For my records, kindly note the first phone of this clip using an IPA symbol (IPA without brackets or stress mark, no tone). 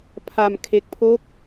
pʰ